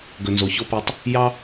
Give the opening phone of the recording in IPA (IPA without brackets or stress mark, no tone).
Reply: ɡ